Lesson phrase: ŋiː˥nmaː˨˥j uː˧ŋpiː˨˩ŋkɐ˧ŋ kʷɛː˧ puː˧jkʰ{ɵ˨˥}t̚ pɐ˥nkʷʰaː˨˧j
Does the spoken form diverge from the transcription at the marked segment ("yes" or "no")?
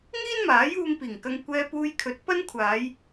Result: no